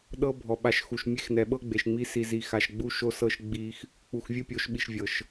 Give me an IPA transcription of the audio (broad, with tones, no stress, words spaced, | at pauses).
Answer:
ɗɤ˦bʱɔ˨ ɓa˨ʃxu˨ʃ mʲe˦xnɛ˨ɓɤ˦ ɡ͡be˨ʃŋ͡mi˦ si˨zi˨ xa˨ʃɡ͡bu˦ʃo˦sɤ˦ʃ ɡ͡bi˦x | k͡pu˨xvʲɯ˦pʲo˨˦ʃɓi˨ʃ vʲɤ˨ʃ